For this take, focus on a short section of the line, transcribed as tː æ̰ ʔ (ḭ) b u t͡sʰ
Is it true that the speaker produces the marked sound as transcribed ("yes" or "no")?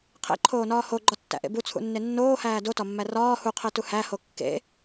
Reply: no